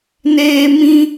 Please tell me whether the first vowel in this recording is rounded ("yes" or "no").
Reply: no